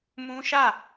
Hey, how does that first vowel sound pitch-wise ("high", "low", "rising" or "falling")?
high